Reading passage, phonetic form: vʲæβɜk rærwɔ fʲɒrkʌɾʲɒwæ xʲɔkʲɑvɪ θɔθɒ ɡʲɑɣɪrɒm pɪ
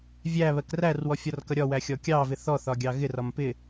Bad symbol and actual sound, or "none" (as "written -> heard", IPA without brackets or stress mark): none